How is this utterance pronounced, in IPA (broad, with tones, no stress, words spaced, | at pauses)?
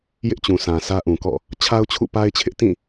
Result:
jɪ˦ʔt͡ɕũ˨sã˨ sä˦ʔũ˨kɔ̰˦˨ | t͡ɕʰa˦ʊ̯t͡ɕʰṵ˦˨pa˦ɪ̯t͡ɕʰɪ˦ʔ tĩ˦˨